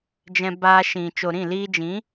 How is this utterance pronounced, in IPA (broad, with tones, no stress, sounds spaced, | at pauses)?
d͡ʒ ɛ̃˧ b aː˧ ʃ ĩ˨ t͡ʃ o˨ ɾ ĩ˦˨ l iː˧ d͡ʒ ĩ˨˦